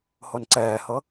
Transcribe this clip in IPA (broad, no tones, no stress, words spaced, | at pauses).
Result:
honǀɛːhɤ